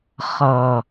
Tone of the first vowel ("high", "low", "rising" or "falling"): low